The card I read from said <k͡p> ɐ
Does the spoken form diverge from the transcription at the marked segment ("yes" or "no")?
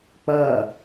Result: no